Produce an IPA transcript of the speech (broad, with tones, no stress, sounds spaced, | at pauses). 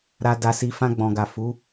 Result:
ɾ a˧ d a˧ s i˧ f ã˧ ɡ͡b ɔ̃˨ ɡ a˨ f u˨˦